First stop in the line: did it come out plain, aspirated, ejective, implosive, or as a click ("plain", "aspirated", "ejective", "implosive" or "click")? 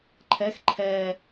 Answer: click